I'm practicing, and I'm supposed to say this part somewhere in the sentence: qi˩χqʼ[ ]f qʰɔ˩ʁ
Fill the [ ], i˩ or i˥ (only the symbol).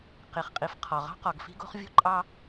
i˩